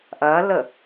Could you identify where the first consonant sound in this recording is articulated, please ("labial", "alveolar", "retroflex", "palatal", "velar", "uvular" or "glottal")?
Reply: glottal